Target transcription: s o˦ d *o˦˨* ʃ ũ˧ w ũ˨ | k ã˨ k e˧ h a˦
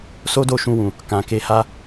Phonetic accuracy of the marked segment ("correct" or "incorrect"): correct